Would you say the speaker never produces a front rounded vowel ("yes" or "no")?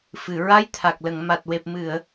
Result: yes